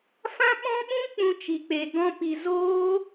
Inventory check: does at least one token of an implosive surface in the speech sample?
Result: yes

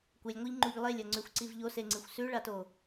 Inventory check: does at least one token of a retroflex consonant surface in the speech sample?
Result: yes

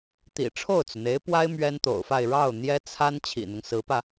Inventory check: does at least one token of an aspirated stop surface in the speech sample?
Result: yes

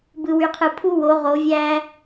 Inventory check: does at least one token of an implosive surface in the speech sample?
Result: no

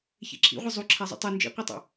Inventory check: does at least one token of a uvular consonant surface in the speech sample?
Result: yes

